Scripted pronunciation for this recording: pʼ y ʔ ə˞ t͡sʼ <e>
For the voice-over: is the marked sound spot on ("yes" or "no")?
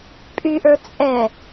no